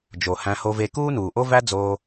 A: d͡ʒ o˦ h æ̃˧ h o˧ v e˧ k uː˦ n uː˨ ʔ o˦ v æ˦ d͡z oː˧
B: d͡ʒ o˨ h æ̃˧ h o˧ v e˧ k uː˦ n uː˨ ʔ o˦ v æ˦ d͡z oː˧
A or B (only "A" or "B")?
B